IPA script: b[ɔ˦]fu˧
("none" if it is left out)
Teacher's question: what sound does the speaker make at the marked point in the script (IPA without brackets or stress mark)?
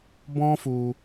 ɔ̃˦